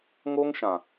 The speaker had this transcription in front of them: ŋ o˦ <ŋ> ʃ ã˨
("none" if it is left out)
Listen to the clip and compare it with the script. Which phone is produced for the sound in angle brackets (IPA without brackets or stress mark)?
ŋ